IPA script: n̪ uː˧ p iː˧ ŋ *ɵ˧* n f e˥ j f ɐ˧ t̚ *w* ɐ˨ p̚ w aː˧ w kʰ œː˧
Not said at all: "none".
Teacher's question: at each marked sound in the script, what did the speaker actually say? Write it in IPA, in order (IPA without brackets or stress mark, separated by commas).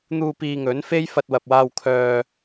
ɵ˨˥, w